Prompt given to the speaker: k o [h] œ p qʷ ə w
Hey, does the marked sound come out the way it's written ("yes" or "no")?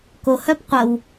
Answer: yes